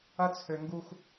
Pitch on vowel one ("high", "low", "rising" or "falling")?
high